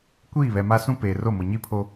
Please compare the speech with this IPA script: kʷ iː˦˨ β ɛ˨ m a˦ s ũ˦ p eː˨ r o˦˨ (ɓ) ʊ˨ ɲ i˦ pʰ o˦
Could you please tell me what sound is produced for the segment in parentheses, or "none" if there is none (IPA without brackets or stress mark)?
m